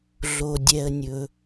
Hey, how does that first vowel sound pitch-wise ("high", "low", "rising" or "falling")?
low